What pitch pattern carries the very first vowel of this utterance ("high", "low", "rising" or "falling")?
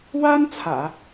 high